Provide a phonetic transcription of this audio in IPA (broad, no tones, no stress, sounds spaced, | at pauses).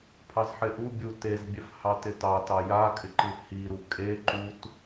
pʰ ɑ z ħ ɪ ʔ u bʲ u t e z bʲ ɛ f h ɑ t ɪ t ɑ t ɑ j a kʼ ɪ ǃ ɨ h i ɾ u kʼ e ǃ u t